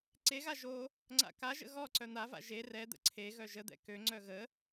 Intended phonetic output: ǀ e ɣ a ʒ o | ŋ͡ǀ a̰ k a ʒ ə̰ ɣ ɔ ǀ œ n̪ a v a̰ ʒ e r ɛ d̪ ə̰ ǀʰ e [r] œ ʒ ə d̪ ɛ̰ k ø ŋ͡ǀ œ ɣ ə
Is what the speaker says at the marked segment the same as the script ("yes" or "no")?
no